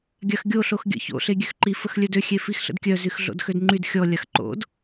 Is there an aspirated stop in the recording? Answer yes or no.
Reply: no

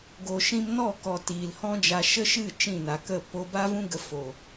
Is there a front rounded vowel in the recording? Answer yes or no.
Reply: no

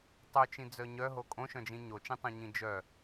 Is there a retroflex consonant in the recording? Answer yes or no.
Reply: no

